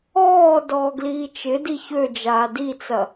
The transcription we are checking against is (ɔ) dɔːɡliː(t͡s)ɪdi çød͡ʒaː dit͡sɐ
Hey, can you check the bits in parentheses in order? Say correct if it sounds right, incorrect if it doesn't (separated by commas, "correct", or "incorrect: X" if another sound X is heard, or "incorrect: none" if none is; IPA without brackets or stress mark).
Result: incorrect: ɔː, incorrect: t͡ʃ